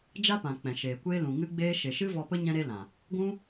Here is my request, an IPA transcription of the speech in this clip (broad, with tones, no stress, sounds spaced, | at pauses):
d͡ʒ a˦ p ã˨ k͡p ɛ̃˨ ʃ eː˨ kʷ eː˦ l ũ˨ ŋ ɨ˦ ɡ͡b eː˦ ʃ e˨ ʃ ɨ˦ v ɔ˧ p ə˦ ɲ ɛ̃˦ ɾ e˦ l ã˨ | ɡʷ ũ˦